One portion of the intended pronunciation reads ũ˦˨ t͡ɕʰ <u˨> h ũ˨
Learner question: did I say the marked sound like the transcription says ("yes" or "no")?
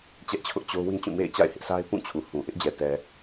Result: yes